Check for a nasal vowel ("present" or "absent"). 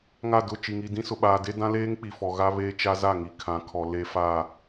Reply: present